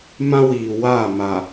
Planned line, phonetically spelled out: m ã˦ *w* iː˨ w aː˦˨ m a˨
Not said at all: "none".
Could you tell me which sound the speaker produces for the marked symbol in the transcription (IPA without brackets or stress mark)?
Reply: w